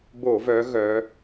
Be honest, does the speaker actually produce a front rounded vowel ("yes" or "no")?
yes